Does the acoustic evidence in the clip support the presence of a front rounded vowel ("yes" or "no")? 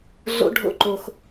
no